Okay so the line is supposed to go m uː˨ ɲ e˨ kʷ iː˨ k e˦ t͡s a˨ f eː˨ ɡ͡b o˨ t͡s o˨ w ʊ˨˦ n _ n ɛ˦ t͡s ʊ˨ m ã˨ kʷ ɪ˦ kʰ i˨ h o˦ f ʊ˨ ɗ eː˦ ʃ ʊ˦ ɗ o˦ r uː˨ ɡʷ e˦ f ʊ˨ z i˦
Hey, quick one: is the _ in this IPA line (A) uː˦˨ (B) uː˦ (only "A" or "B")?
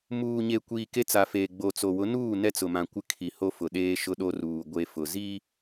A